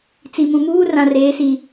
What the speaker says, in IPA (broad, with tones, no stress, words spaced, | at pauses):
t͡si˨mũ˨muː˦ rã˨reː˨˦si˨